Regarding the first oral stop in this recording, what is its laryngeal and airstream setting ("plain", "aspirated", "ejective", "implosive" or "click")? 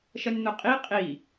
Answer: ejective